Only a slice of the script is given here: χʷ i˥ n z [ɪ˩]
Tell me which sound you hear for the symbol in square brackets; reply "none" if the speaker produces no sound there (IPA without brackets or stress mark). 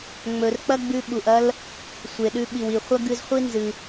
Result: ɨ˩